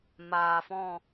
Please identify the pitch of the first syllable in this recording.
low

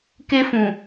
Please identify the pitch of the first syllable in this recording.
high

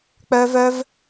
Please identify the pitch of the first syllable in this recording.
high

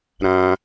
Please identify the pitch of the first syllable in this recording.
high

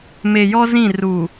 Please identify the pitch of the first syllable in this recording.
low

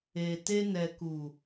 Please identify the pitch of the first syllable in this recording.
low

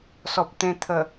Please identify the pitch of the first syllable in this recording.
low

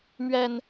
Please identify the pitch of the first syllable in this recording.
low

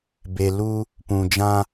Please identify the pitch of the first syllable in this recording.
low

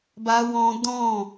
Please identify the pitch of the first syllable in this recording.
high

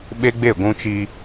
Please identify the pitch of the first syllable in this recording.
high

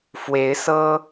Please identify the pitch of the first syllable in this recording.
rising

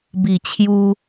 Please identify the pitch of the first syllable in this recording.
low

